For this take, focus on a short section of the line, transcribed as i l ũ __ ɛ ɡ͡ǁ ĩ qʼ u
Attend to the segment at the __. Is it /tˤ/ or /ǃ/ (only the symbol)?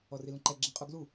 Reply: ǃ